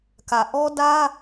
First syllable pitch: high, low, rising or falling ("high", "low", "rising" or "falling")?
low